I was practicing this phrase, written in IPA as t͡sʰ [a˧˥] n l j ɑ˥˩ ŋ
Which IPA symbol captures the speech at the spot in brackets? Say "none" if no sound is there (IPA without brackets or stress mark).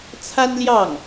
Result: a˥